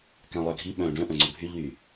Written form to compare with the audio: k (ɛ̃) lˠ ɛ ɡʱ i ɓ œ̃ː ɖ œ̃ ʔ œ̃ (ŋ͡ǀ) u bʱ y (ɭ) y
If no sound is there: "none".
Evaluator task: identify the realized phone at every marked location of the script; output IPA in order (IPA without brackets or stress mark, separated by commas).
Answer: ɛ̃, ŋ͡ǀ, ʎ